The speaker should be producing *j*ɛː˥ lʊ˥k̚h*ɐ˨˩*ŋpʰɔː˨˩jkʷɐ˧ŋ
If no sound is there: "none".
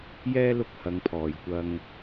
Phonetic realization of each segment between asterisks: j, ɐ˨˧

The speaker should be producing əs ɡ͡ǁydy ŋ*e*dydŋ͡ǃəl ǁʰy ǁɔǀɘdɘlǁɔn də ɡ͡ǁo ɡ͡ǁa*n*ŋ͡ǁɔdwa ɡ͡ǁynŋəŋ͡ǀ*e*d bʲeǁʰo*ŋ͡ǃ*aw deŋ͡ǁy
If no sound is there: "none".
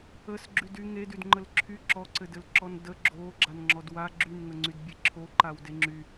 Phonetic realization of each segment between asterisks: e, n, y, ǃ

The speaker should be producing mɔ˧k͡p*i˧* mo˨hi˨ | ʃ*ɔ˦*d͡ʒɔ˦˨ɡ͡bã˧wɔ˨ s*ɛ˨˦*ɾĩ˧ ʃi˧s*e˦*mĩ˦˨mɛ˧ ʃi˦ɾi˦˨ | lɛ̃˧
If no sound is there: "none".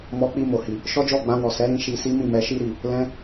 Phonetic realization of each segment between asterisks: i˧, ɔ˦, ɛ˨˦, i˦

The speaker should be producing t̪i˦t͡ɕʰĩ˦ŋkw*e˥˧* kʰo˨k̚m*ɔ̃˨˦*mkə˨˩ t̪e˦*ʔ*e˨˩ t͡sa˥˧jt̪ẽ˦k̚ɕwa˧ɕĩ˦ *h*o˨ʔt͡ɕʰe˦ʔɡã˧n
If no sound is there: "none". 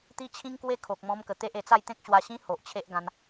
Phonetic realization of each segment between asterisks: e˥˧, ɔ̃˧, ʔ, h

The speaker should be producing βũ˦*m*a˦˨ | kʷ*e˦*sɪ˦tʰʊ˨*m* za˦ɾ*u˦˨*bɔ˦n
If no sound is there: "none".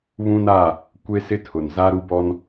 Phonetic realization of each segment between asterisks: n, e˦, n, u˦

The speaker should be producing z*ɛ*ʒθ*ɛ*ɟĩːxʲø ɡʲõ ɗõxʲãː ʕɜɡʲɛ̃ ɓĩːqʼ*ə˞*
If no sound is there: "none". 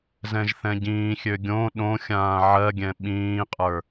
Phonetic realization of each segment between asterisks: ɛ̃, ɛ̃, ə˞

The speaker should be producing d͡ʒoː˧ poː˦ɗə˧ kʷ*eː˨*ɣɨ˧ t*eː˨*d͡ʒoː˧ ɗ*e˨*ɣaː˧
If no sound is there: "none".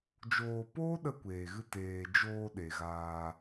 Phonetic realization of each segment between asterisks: eː˨, eː˨, e˨

